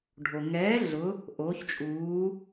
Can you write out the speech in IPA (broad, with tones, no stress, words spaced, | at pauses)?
ɖʱo˩ ŋɛː˩˥ ɮʊ˩˥ | ʔoː˩˥çt͡ʃʼuː˩˥